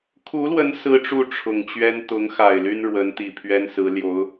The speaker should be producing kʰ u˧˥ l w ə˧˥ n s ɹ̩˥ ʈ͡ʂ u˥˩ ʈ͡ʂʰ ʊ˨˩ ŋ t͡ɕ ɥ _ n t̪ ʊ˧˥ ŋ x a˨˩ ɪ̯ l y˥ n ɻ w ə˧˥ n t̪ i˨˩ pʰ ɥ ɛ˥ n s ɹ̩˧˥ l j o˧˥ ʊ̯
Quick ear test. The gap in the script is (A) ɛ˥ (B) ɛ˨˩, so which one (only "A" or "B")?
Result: A